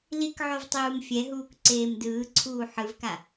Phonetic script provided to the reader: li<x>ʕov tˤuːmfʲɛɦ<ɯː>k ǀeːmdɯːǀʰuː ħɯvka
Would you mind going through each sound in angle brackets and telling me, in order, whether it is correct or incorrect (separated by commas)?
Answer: incorrect, incorrect